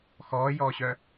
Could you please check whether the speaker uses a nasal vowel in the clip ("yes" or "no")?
no